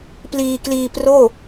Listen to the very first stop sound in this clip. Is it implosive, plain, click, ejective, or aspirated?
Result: plain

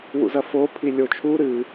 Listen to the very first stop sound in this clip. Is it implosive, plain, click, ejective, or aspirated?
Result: aspirated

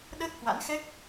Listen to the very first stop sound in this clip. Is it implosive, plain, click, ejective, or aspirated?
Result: implosive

